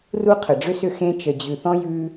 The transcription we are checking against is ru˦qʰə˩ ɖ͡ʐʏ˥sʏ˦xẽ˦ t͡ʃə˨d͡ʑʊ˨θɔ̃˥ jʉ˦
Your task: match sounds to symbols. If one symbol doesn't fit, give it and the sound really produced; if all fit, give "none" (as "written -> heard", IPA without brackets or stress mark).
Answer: ʊ˨ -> ʉ˨